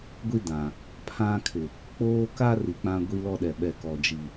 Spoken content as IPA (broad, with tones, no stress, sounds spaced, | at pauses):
ɡʷ i˦ d ã˨ | pʰ ã˦ kʰ ɪ˨ | k͡p oː˦ k a˦ r i˨ k͡p ã˦ ɡʷ i˦ l ɔ˦ ɗ ɛ˨ ɓ ɛ˨ k ɔ˨ d͡ʒ i˨